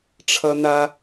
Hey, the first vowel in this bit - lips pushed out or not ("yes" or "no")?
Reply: no